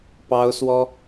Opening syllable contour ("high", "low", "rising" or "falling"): high